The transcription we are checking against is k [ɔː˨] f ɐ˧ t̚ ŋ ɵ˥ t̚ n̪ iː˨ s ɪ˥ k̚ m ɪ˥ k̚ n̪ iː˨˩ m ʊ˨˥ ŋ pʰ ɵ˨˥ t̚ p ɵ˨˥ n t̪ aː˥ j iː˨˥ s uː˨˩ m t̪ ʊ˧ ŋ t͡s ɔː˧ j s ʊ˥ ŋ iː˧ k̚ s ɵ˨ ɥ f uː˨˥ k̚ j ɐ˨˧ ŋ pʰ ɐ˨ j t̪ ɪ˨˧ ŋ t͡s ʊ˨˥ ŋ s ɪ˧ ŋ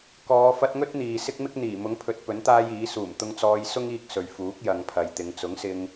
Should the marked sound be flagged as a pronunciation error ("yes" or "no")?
yes